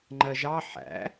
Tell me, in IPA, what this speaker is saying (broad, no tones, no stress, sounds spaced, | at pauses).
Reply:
ŋ͡ǃ ɜ ʒ ɑ ħ æ̰